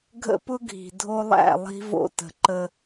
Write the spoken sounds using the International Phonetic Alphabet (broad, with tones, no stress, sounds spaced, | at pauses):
ɡʱ ə̰˦ p ʊ˦ ɡʱ i̤˨ dʱ o˦ lˠ æ̰˦˨ lˠ i̤˦ v o̰˦ t ə̤˨ ǃ ə˦